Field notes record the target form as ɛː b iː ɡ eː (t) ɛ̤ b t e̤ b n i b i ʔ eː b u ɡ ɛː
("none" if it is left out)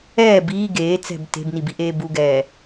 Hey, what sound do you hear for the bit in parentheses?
t͡s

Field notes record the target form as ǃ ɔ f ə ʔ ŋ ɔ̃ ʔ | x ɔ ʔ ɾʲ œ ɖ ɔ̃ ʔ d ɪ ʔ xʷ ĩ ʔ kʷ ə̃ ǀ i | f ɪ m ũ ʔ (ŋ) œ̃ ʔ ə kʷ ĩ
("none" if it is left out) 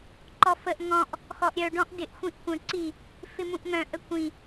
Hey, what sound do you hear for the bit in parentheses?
ŋ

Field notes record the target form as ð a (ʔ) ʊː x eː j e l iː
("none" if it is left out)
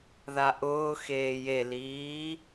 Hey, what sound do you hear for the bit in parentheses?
ʔ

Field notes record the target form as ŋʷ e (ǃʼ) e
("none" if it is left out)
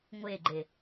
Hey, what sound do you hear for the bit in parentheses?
ɡ͡ǃ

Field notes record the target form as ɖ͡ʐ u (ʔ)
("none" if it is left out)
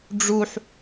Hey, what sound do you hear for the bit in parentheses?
ħ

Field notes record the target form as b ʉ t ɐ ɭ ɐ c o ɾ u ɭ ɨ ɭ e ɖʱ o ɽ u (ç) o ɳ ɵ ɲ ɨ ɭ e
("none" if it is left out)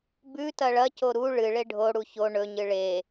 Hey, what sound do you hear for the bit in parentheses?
ç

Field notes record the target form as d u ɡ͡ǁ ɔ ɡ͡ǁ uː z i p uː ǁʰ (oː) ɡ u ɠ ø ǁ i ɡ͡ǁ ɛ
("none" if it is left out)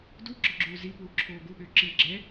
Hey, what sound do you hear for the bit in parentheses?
oː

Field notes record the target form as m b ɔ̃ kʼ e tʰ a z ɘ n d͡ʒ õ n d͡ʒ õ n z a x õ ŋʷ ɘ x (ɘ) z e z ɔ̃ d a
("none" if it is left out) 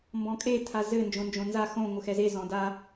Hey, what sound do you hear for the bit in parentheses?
ɛ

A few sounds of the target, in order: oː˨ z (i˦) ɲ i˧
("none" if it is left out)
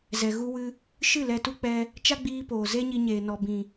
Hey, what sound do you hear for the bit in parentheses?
e˦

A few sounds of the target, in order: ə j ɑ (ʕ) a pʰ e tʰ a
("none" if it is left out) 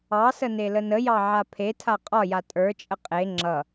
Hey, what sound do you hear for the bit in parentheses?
ʕ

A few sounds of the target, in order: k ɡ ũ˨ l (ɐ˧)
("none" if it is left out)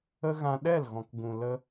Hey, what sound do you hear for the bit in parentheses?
ə˧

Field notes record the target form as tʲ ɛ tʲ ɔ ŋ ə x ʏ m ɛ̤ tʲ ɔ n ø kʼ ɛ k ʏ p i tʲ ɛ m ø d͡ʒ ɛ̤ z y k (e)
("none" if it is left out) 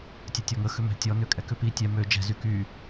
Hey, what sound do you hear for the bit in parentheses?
y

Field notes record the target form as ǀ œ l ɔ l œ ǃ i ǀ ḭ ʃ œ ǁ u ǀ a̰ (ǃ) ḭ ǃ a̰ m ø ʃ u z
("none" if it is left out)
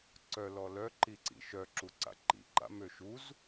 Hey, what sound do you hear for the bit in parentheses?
ǃ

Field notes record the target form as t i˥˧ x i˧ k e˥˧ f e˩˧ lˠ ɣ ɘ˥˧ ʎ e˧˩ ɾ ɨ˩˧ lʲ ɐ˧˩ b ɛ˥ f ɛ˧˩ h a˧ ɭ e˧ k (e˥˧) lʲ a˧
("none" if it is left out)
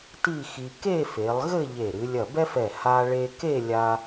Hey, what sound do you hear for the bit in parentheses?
e˥˧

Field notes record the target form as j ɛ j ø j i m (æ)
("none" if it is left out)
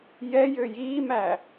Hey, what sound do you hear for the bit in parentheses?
æ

